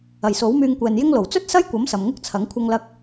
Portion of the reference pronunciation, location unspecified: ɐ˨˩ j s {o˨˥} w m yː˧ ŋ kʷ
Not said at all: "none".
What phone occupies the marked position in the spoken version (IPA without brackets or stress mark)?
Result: o˨˥